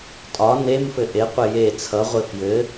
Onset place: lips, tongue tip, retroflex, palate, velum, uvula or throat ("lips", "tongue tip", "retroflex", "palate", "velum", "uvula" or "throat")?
tongue tip